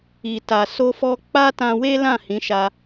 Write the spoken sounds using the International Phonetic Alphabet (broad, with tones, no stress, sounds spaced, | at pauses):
i˨ t a˨ s o˧ f ɔ˧ k͡p a˦ t ã˧ w e˦ l ã˦˨ h ĩ˨˦ ʃ a˧